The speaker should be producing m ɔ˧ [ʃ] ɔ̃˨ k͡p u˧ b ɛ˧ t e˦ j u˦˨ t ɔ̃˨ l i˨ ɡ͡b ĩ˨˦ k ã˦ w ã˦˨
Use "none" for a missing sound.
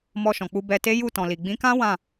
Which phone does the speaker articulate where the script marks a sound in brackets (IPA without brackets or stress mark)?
ʃ